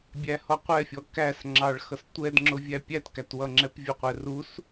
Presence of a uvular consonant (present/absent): present